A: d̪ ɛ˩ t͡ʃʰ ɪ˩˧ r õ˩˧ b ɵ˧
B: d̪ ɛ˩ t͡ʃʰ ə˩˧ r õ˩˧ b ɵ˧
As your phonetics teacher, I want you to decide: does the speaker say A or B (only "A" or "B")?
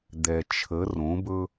B